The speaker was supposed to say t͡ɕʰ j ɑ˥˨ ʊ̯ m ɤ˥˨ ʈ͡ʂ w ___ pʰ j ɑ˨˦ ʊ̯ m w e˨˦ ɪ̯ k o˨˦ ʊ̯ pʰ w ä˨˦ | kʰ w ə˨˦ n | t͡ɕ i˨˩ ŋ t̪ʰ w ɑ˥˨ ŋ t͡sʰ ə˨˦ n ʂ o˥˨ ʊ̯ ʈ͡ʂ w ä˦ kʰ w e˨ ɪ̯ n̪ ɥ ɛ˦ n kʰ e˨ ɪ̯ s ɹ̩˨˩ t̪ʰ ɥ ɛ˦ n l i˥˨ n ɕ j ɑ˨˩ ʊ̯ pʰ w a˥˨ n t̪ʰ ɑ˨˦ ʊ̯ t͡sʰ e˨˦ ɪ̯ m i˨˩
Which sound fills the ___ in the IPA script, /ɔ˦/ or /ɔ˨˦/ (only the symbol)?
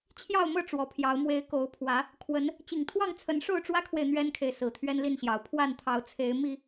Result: ɔ˨˦